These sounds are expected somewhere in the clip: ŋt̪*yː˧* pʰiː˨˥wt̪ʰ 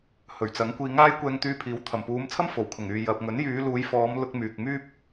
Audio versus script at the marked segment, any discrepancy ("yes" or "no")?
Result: no